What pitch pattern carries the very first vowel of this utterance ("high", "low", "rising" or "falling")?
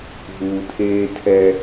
low